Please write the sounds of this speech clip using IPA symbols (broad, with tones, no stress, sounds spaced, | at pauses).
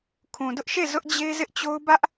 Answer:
kʰ ũ˨ d ʊ˦ ʔ ʃ e˦˨ z ʊ˦ ʔ d͡ʑ e˦ z ɪ˦ ʔ t͡ɕ o˦ ʊ̯ b ä˦ ʔ